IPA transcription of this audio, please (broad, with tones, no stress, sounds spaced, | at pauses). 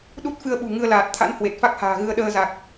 ɗ u˦˥ t̚ f ɨ˧ ə̯ ɓ ṳ˨˩ ŋ ɨ˧ ə̯ l aː˨˩ t̚ t̪ʰ a̰˧˥ n h w e˨˩ t̚ f a˦˥ k̚ h a̤ː˨˩ ɣ ɨ˧ ə̯ ɗ əː˧ z a˨˩ k̚